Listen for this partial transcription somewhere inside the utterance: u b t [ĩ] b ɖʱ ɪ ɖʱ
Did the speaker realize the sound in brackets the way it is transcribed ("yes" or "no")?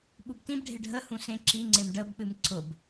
yes